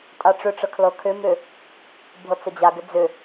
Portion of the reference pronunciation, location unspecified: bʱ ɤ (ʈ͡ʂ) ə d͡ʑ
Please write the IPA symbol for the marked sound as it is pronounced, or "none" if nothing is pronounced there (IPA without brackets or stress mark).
t͡s